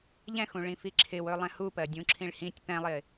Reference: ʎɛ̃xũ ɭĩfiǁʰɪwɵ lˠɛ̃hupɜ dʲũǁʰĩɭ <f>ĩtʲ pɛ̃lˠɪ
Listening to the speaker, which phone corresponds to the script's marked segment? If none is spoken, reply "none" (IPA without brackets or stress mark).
h